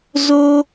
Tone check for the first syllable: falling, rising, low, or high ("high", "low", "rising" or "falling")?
high